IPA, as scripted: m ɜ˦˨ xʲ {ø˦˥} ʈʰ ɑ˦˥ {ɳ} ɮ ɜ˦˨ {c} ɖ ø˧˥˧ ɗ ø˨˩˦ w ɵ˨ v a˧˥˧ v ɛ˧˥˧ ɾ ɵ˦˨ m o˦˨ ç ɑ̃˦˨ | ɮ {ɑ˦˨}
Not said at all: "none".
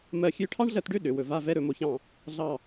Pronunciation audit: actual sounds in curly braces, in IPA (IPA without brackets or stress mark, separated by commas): ø˦˥, ɳ, t, ɑ˦˨